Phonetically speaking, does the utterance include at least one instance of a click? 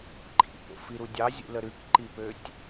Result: yes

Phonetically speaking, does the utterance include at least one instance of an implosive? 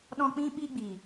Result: yes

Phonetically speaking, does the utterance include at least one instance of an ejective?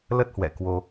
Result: no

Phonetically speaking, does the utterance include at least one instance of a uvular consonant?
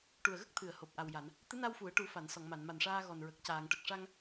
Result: no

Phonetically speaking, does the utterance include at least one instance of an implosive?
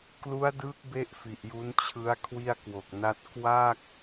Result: no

